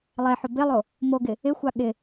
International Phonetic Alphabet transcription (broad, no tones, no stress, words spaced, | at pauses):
lˠɛħʊ bɪlˠo | moɡɪ | ɪxʷa ɠɪ